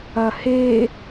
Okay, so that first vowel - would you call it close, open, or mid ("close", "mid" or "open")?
open